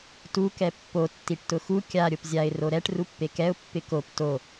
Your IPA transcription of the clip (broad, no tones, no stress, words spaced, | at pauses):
tu kɛpːo tːiʈtʊxu kʲa ɾʲopzʲaɪ̯ roɾɛʈ rupːekɛʊ̯ pːɪkop to